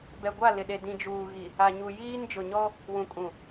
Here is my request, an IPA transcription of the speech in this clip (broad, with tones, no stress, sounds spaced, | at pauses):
b ɛ˨ ɡʷ a˦˨ l ɪ˨ ɗ e˨ d ĩ˨ d͡ʒ uː˨ ɣ i˨ | a˨ ɲ u˨ j iː˦ n d͡ʒ ʊ˨ ɲ ɔ˦ | w ũ˨ kʼ ũ˨